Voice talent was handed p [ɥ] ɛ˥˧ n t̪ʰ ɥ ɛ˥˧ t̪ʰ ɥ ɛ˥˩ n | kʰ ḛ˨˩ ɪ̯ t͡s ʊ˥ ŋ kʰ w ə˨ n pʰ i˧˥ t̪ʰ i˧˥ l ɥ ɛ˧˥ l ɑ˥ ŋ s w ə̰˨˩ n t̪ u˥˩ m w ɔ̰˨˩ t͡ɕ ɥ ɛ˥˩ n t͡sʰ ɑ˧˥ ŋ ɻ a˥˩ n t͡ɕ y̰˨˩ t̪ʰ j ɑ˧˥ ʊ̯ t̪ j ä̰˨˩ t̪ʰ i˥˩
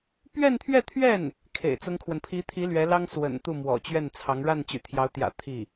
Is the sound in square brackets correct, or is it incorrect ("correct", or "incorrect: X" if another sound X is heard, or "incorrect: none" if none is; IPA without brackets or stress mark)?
correct